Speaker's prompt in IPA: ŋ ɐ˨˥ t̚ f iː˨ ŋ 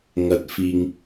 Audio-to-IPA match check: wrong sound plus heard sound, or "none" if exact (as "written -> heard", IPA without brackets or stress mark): none